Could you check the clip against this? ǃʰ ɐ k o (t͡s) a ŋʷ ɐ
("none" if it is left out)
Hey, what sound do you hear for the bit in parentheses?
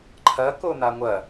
n̪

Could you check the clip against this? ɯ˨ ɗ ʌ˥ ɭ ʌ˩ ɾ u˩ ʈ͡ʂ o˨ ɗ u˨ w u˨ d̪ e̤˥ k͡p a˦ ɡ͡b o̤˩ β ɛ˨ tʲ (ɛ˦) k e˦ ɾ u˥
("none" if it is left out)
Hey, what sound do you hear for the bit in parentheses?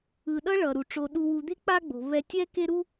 ɛ˦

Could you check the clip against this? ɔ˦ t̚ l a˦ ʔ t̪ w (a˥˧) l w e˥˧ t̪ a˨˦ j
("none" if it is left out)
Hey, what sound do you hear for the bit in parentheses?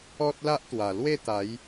a˨˩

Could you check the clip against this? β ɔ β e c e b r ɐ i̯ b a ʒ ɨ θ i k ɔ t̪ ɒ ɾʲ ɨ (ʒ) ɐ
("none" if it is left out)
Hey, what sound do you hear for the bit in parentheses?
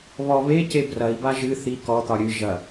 ʒ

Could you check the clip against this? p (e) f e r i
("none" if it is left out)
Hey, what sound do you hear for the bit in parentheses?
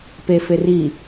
e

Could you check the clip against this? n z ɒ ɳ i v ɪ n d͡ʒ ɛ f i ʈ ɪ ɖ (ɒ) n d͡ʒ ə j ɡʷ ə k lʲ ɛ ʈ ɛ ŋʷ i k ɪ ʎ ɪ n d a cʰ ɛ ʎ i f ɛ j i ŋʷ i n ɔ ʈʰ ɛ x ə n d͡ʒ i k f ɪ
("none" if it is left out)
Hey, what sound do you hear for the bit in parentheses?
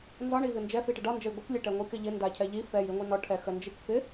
ɒ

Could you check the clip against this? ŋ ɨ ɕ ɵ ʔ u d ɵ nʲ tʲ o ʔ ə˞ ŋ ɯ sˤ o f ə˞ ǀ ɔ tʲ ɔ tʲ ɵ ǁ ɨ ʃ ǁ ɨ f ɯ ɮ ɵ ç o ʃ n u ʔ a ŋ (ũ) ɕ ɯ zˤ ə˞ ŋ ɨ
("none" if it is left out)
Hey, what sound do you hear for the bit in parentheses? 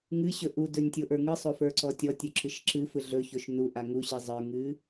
u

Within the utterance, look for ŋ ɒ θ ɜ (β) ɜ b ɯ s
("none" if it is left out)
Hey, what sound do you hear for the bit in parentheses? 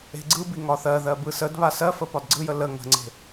ð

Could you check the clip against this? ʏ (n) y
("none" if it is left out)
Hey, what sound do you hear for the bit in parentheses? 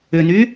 n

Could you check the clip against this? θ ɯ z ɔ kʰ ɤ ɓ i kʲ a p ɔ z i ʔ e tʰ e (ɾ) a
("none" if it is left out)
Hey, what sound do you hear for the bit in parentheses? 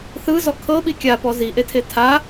tʰ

